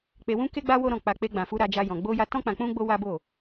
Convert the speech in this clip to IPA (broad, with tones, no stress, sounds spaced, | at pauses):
k͡p e˧ w ũ˦ k e˦ ɡ͡b a˦ w o˦ ɾ ɔ̃˦˨ k͡p a˧ k͡p e˧ ɡ͡b ã˨ f u˧ ɾ a˧ d͡ʒ a˧ j ɔ̃˨ ɡ͡b o˧ j a˧ t ɔ̃˦ k͡p ã˧ k͡p ũ˦ ɡ͡b o˦ w a˦ b o˦˨